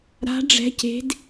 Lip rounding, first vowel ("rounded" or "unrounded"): unrounded